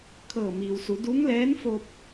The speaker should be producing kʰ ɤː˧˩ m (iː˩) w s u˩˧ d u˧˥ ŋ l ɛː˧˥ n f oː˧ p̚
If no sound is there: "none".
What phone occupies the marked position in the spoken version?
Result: iː˩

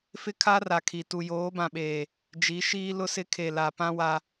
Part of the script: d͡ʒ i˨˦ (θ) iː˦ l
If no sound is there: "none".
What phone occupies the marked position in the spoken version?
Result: ʃ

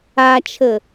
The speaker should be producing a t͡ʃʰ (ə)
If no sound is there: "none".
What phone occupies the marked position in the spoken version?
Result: ə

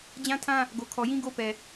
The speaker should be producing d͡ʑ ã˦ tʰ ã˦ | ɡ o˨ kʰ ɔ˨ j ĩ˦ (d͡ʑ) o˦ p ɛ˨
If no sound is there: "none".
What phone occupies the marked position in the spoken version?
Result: ɡ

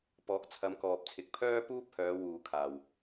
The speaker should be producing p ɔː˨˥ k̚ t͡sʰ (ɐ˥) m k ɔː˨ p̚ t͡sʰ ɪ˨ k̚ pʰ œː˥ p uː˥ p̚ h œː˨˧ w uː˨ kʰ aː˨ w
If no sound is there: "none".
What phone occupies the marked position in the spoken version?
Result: ɐ˨˧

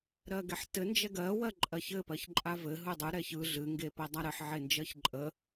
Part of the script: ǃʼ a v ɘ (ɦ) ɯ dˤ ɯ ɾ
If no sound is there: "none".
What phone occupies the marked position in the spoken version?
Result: ɦ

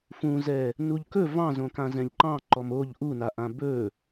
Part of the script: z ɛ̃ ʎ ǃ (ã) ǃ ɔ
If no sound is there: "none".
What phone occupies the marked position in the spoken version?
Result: ɑ̃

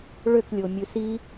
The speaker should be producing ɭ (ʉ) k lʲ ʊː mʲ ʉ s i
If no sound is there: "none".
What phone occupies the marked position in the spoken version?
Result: ø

